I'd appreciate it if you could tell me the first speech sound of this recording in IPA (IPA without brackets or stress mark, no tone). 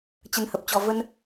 t͡ɕ